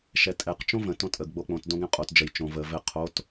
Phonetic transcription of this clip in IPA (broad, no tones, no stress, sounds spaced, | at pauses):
ʃ ɛ tʼ ɛ q t͡ʃ õ v ə̃ t õ tʼ ə ɡ ɡ͡b o k͡p õ t d õ ɡ ɛ̃ qʼ o t d͡ʒ ə j t͡ʃ õ v ə v ɘ qʰ o t